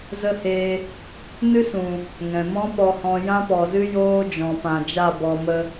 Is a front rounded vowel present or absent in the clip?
absent